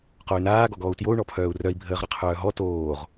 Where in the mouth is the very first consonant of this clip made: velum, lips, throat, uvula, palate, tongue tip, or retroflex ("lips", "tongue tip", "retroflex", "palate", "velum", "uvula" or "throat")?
uvula